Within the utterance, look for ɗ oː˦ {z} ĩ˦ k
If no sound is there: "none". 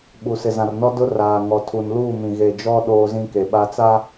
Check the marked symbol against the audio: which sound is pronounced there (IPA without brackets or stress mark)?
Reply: z